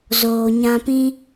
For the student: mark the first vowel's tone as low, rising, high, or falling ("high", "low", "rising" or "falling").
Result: low